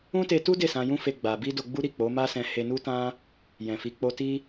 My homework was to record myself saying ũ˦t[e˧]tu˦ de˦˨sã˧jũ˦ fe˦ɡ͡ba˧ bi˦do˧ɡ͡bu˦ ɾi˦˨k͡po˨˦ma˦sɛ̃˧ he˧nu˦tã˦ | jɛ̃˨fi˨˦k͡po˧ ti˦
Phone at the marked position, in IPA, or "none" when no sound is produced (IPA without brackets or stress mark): e˧